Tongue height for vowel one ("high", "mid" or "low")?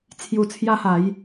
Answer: high